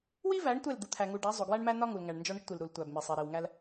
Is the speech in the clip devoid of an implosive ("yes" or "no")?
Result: yes